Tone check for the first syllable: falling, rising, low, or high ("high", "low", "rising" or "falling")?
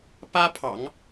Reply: high